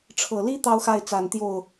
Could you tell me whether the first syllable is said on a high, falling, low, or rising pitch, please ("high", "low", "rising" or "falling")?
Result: low